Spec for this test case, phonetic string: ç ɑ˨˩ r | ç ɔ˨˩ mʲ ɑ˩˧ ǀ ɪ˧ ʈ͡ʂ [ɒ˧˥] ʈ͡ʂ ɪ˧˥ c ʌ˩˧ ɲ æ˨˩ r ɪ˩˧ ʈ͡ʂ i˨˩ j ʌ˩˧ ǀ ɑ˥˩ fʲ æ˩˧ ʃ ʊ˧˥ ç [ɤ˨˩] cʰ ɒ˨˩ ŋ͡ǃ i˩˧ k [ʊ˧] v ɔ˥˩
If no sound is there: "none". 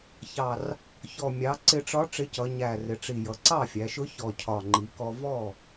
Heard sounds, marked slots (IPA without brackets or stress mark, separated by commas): ɒ˧˥, ɔ˨˩, ɔ˧